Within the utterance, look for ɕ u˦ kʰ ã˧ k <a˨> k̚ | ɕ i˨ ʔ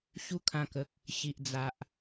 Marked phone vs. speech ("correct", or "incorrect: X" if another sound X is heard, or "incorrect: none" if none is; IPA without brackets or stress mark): incorrect: ə˨